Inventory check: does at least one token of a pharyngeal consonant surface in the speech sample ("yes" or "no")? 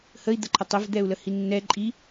no